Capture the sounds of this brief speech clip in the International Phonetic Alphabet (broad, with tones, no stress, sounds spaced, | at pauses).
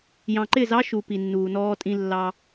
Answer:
j ɑ̃˨ ǃ ɪ˦˨ z ɑ˦ ʃ u˨ p i˨ nː uː˨ n ɔː˦ tʼ ĩ˦ lː ɑ˦